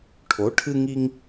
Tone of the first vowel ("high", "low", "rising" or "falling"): rising